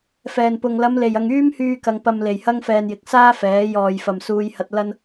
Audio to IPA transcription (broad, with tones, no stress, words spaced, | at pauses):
fɛː˨˩npʊ˨ŋ lɐ˨˧mle˨˩jɐ˨ŋ yː˥mhyː˧kɐ˨ŋ pɐ˨mle˨˩jhɐ˧ŋfɛː˨n jɪ˨k̚saː˥fɛː˨˥ jɔː˨jfɐ˨m suː˧jhɐ˧t̚ lɐ˥n